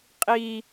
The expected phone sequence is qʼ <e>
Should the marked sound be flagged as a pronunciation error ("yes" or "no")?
yes